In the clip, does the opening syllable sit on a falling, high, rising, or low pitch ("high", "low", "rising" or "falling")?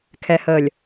low